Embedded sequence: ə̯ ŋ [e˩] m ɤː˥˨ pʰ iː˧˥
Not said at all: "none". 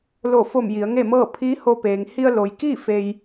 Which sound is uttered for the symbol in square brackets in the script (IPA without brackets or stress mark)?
e˥˨